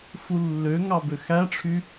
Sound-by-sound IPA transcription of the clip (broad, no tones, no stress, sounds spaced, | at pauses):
f u lː ø ŋ ɑ b ø x æ ʈ͡ʂʰ y